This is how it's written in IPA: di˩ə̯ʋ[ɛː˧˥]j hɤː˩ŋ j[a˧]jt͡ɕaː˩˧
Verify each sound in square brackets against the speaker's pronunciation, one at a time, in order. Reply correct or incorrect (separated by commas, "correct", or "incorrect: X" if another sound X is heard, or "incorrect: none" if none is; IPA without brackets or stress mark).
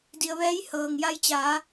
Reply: correct, correct